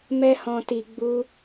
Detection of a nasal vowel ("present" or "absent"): present